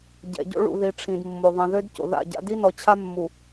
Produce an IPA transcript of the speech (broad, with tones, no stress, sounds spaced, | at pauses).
ɟ ɛ̰˨ ɟ o̰˦ ɭ ṵ˨ ð i˨ ʈ͡ʂʰ ĩ˨ d mː o˨ ðˤ ĩ˨ ð ø˦ d c o̰˨ ð a̰˦˨ ɟ a̰˦ d i˦ n ɔ˨ t͡ɕʰ a˦ mː u˨